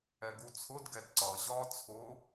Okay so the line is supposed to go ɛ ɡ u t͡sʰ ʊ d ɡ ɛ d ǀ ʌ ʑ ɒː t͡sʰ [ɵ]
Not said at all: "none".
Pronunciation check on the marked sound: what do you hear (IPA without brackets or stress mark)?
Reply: ʊ